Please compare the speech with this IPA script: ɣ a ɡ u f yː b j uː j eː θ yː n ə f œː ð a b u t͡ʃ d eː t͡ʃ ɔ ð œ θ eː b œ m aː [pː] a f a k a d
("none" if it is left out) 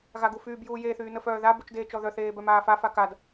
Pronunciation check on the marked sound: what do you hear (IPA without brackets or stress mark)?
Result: f